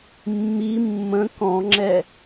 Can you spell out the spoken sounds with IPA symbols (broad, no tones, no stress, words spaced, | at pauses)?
mːi mːə̃ kɔ̃ŋ͡ǁɛ